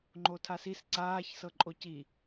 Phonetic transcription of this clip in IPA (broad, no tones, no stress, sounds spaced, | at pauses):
ŋ͡ǃ o tʰ a s i s ǀ aː ç s ɤ ǃʼ o c i